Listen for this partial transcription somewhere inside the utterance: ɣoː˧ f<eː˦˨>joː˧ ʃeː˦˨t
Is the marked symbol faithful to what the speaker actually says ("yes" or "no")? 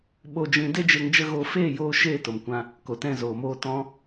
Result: yes